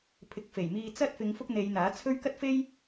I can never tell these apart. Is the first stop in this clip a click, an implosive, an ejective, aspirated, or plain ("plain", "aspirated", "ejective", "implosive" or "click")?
aspirated